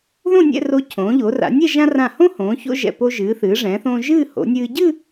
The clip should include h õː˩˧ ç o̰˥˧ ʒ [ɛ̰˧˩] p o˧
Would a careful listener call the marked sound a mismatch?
no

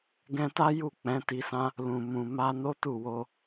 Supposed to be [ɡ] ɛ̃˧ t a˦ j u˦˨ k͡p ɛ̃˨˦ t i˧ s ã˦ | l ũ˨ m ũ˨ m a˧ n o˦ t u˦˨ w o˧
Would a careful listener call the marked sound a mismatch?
no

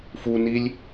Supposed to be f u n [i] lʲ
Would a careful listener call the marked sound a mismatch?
no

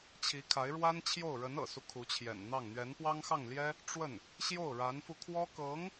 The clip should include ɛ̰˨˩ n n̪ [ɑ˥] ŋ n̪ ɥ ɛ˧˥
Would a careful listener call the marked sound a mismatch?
yes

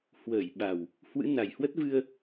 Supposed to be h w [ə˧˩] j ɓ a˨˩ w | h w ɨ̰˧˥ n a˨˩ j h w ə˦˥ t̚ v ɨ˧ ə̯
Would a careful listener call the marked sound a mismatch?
yes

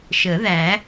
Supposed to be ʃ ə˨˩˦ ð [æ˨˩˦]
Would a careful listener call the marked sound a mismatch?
no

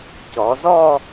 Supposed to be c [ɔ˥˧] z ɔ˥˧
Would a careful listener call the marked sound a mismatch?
yes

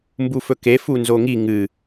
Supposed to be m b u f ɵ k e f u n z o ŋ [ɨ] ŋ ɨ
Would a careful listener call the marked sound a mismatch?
yes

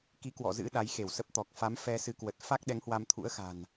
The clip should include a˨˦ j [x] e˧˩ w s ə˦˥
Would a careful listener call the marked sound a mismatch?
no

